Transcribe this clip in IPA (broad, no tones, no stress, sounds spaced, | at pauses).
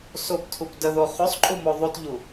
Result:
s o p tʰ u p d ə ð o χ ʉ sˤ ǃʼ u m o ðˤ u t ʎ u